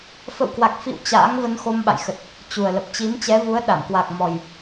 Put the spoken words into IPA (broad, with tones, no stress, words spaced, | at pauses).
fə̰˧˨wkwa˨˩k̚fḭ˧˨w t͡ɕa̰ː˧˥ŋ və˧nxo˧mɓa̰˧˨j xə˨˩t̚ | t͡ɕu˨˩ə̯lə˨˩p̚ t͡ɕi˨˦mt͡ɕɛ˨˦vu˨˦ə̯ ɗa˧˩mkwa˨˩k̚mɔ˨˩j